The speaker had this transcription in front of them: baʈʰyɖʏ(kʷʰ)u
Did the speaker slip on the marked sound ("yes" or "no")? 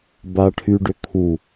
yes